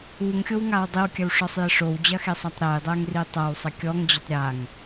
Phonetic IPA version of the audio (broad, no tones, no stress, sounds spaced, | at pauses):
u ŋ xʲ o w ŋ a w dˤ i w kʲ ɐ w ʂ ɔ sˤ j ɘ ʂ o w d͡ʑ ɐ x e sˤ a tˤ ɾ ɛ j dˤ ɛ ŋ r i tˤ ɐ w sˤ ɘ kʲ ɔ ŋ d͡ʑ ɘ tˤ ɾʲ a ŋ